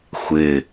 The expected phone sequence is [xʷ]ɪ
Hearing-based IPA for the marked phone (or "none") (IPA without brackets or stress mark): xʷ